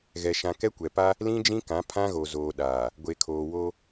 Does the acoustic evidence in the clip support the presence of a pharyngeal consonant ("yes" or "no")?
no